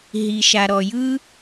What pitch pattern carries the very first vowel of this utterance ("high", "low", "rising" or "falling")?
low